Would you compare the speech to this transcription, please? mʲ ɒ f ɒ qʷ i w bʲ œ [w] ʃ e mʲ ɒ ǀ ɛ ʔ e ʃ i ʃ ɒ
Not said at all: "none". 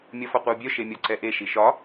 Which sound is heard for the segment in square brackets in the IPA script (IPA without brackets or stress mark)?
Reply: none